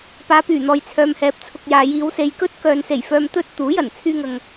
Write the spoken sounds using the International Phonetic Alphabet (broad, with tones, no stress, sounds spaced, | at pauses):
p aː˨˧ p yː˨˩ n̪ ɔː˨ j t͡sʰ œː˨ m h ɛː˨˥ p̚ t͡sʰ ʊ˨ k̚ j aː˨ j iː˨˧ w s e˨ j k ɵ˥ t̚ k œː˨ n s e˨˩ j f œː˧ m t̪ ɵ˥ t̚ t̪ uː˨˥ j ɐ˨˩ n t͡sʰ yː˧ ŋ ɐ˨ ŋ